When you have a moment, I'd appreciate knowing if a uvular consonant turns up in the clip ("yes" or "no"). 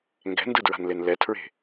no